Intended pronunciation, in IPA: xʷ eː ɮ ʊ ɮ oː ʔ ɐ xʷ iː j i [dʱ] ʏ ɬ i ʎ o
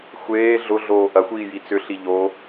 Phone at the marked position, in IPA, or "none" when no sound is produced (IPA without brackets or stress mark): t͡s